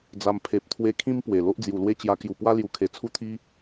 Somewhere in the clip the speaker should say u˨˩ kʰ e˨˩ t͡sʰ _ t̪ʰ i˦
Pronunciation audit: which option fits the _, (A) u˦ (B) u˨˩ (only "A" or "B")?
A